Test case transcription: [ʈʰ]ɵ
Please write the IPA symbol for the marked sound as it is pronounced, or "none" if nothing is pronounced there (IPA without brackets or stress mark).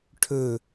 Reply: ʈʰ